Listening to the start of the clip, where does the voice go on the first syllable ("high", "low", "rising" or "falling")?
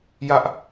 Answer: high